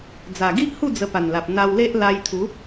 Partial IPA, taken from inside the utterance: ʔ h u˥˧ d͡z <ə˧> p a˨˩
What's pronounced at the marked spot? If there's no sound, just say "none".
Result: ə˧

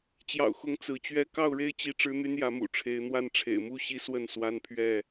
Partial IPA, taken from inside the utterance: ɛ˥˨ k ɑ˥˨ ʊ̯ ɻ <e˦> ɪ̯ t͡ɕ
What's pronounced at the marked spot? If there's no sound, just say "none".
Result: e˦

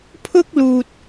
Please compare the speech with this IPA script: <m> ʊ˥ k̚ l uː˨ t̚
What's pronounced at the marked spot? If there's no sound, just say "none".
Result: pʰ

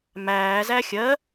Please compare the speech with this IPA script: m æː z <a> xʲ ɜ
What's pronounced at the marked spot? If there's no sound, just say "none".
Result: æ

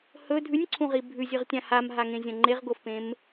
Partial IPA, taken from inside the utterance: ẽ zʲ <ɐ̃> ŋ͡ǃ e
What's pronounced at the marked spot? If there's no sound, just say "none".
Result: ɐ̃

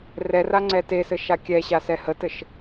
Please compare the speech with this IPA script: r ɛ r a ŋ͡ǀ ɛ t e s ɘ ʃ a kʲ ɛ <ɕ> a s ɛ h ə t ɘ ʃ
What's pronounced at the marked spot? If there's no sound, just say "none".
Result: ɕ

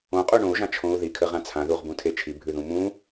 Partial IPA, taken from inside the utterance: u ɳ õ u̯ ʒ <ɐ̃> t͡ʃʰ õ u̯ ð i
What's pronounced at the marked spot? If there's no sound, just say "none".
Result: ã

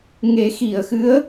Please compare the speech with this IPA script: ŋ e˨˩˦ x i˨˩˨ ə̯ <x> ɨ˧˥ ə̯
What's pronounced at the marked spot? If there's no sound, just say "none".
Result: x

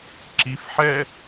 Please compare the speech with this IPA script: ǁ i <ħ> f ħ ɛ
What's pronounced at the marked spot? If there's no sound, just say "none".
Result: none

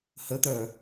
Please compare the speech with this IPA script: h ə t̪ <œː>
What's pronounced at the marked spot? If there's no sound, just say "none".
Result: œ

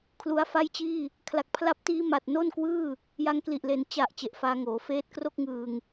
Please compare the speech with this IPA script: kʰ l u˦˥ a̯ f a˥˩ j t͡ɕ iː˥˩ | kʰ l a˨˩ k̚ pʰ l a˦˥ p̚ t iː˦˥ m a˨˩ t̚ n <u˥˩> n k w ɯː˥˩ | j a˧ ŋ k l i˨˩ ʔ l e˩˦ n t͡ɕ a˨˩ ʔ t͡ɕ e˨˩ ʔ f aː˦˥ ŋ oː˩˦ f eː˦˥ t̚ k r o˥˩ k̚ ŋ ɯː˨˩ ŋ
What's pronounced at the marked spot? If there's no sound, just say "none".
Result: o˥˩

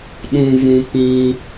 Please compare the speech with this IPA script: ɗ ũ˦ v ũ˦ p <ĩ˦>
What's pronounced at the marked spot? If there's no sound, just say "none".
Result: ĩ˦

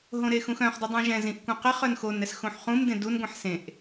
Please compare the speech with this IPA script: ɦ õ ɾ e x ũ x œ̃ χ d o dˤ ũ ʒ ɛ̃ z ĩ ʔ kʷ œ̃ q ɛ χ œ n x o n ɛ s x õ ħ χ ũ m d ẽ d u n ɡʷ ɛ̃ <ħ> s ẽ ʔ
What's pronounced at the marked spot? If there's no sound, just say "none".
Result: ħ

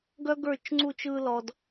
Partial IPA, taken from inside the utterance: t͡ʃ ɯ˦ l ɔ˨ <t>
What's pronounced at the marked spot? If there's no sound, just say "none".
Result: d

